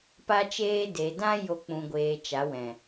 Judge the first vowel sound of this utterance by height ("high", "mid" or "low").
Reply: low